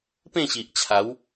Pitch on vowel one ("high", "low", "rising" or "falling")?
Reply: falling